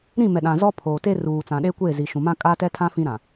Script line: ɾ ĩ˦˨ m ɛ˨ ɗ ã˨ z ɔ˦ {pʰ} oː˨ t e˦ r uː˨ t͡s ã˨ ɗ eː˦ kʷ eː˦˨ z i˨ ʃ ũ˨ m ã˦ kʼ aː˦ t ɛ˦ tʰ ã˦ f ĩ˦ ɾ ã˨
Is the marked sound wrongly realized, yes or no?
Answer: no